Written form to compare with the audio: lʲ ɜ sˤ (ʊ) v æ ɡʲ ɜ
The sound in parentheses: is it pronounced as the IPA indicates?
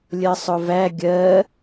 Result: yes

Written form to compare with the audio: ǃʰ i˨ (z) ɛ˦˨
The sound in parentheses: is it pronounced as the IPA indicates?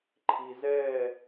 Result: yes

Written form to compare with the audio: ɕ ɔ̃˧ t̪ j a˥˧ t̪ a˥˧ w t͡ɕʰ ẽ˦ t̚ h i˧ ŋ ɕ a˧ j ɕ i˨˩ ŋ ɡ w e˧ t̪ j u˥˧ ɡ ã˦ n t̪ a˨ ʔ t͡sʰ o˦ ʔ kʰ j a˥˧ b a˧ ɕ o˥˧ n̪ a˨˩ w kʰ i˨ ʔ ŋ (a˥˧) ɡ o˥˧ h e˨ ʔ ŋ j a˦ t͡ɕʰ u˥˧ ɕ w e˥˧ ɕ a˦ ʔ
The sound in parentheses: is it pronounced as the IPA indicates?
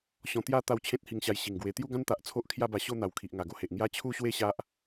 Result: no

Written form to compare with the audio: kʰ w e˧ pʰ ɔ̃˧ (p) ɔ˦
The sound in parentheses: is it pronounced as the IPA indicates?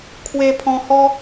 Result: no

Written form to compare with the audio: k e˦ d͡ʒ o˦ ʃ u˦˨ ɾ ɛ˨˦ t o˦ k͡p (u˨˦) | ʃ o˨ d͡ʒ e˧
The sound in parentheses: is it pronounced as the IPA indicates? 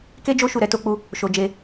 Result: no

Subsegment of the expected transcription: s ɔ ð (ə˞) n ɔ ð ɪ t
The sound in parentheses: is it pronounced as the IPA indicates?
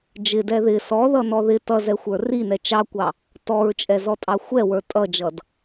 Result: no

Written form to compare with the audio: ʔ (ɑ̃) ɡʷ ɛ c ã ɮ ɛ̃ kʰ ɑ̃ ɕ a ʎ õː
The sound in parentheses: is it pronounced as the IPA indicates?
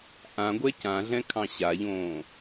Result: no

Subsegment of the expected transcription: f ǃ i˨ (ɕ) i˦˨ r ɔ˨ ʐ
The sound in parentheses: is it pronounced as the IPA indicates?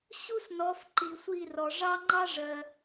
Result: no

